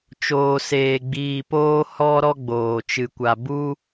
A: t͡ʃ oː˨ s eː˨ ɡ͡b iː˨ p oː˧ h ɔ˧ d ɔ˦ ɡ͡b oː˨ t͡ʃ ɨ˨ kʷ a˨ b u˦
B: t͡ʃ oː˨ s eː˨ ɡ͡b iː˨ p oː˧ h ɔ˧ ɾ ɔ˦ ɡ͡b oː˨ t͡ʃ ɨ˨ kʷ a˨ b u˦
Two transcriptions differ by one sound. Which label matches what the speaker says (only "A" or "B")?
B